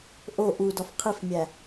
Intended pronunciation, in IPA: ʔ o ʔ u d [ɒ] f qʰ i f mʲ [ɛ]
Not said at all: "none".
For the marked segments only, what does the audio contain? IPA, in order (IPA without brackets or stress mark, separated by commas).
ɒ, æ